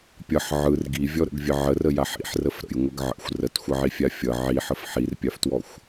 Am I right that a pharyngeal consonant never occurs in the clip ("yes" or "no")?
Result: no